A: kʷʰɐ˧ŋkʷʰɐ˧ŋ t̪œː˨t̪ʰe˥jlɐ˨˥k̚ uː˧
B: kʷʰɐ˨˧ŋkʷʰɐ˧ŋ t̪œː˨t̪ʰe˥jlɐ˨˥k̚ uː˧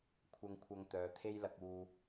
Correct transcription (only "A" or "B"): A